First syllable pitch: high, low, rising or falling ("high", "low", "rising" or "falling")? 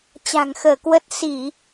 low